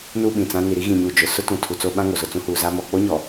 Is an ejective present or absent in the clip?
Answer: absent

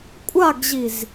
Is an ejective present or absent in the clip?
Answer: present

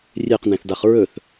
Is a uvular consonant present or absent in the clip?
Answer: present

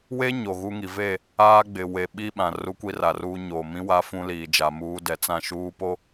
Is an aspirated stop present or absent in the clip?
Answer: absent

